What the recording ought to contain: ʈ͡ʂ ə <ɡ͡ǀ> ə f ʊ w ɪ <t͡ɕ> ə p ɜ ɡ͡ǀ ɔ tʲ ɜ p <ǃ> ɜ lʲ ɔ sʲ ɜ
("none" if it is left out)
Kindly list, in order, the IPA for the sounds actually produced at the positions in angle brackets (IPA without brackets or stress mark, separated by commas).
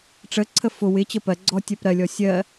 ǀʰ, t͡ɕ, ɾ